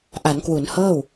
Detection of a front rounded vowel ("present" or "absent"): absent